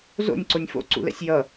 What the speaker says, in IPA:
z o̰ nʲ ǀ o nʲ f o̰ ǀ ṵ l ɛ̰ sʲ j ʌ

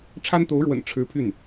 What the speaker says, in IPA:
ʈ͡ʂʰ a˥ n t̪ o˧˥ ʊ̯ ɻ w ə̰˨˩ n ʈ͡ʂʰ ɻ̩˧˥ pʰ y˥˩ n

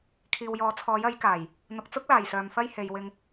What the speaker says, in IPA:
kʰ iː˨ w j ɔː˨˥ t͡sʰ ɔː˨˥ j ɐ˨˥ j k aː˨˩ j | n̪ ʊ˨ k̚ t͡s ʊ˥ k̚ l aː˨˩ j s œː˨ m f ɐ˥ j h e˨˧ j w ɪ˧ ŋ

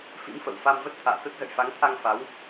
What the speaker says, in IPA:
f ḭ˧˥ m f ə̰˧˨ w f a˧ m v ə˦˥ t̚ t̪ʰ a̰ː˧˨ t̪ ə˦˥ t̚ z ə̰˧˨ j f a˨˦ ŋ t̪ʰ a˧ ŋ f a˨˦ w

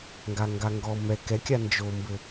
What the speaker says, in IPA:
ŋ ɡ a ŋ ɡ a ŋ ɡ ɔ m ɛ k ɛ kʲ a n d͡ʒ o m b ɘ

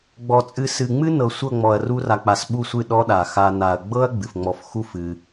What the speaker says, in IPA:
ɡ͡b ɔ˨ t͡sʼ ɨ˧ s ɨ˨ ŋ͡m ɨ˦ n ɤ˨ sʷ ɤ˦˨ ŋ͡m ɔ˨ ɐ̯ r u˧ r a˨ k͡p a˨ s ɓ u˦˨ sʷ ɨ˦˨ ɗ ɔ˦ ɗ a˨ x a˧ n a˨ ɐ̯ ɡ͡b ɤ˦ ɐ̯ ɡ͡b ɨ˨ f ŋ͡m ɔ˧ f x u˦ f ɨ˧

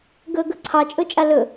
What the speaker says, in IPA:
ɡ ɵ ɡ ɵ ǀʰ ɑ t͡ʃʼ ɵ t͡ʃʼ a l ɵ

